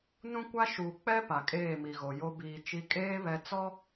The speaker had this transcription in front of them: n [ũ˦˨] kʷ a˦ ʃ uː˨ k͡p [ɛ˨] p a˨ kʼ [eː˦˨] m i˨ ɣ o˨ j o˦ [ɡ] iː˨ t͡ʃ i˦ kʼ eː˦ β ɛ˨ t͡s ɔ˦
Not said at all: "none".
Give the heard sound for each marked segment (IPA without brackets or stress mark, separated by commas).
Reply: ũ˦, ɛ˦, eː˦˨, b